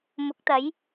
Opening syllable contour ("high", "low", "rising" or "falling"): rising